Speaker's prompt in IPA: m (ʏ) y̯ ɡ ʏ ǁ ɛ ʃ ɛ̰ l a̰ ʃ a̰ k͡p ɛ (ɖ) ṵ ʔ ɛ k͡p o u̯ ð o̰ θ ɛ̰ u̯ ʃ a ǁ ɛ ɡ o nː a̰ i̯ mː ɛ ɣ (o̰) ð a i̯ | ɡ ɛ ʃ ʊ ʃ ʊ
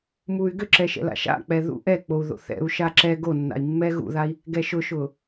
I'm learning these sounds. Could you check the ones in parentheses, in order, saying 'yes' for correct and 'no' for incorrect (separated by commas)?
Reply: no, no, no